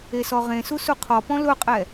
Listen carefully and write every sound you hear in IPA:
esɔʁẽsu suqʰɔpɔ̃ lʊqʼɛ

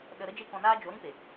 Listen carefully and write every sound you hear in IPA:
ɗə˧ ɾə˦d͡ʒe˦ kɔ̃˧naː˦ d͡ʒo˨˦ɾĩ˦pe˨

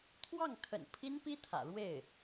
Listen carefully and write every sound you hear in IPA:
t̪ʰwɑ˥˩ŋkʰə̰˨˩n pʰi˥npi˥t̪ʰä̰˨˩ɻwe˥˩ɪ̯

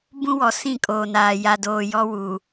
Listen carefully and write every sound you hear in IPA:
bũ˦wɔ˨ sĩ˦˨kʼoː˨naː˨ ja˨doː˨ jɔ˦wu˨

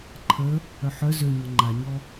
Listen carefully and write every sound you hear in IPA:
ǃʰə | œħœ zøɲɔ ŋ͡ǃaɲɔ

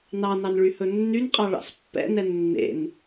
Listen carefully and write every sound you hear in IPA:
nɑnɑn ɭyhɵnːynqʼɑ ɭɑ̰spːɛ̰nɛ nːḛn

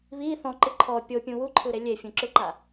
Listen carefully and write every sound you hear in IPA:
βi θɔ̃ǃɯ ǃʰɔ pʲopʲũ wuǃʰɯɾe lʲefʲũǁɯǃa

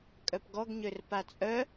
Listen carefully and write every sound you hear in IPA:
kʼœpɡɔɡɲør pat͡sʼœ

